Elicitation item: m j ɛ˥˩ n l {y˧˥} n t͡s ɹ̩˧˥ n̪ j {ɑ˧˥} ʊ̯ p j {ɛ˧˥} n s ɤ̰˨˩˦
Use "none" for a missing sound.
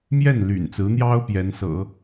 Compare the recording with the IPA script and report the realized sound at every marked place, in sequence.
y̰˨˩, ɑ˥, ɛ˧˥

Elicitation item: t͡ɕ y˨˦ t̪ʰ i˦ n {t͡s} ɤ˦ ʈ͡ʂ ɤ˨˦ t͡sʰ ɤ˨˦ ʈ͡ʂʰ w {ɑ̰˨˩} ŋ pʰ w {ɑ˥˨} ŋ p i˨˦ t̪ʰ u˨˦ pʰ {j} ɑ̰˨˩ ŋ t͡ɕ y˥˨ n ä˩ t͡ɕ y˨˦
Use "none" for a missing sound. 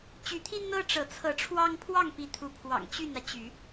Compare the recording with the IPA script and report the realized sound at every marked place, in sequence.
n̪, ɑ˦, ɑ˥˨, w

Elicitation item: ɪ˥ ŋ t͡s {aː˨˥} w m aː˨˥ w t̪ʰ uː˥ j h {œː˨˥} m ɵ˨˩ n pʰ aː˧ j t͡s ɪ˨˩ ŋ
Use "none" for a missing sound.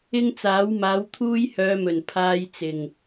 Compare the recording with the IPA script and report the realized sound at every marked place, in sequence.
aː˨˥, œː˨˧

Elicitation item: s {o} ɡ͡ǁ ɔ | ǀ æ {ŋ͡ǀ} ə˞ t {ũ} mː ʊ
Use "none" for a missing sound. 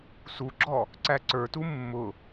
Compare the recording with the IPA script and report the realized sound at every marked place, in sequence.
u, ǀ, u

